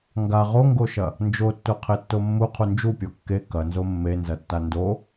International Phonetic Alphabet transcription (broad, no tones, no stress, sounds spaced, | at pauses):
ŋ ɡ a ʁ o ŋ ɡ o ʃ ɐ | n d͡ʒ o tː o qʰ e tː o mː u qʰ u n d͡ʒ u pʲ o kː e k ɐ n z o mː e n z ɐ tː a n d o